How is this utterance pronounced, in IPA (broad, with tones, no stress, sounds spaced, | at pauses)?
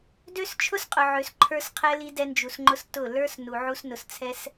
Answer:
d ø˦ s t͡ʃʰ ʊ˦ s qʼ ʊ˨ ʕ ø˨ s ǃʰ ə˞˧ s qʰ ɛ˧ l i˧ d ɛ˧ n d͡ʒ u˨ s ŋ͡ǃ ʊ˧ s t ʊ˦˨ l ə˞˦ s n u˨ ʕ u˧ s n ʊ˨ s t͡sʰ ɛ˧ s